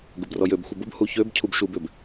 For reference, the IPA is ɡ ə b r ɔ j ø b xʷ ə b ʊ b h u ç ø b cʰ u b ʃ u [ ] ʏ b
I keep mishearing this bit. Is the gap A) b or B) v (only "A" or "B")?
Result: A